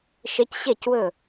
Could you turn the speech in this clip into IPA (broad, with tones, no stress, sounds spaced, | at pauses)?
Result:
ʃ e˦˥ c ɕ e˥˨ c w ɵ˥˨